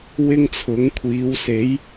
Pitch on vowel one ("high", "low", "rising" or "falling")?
high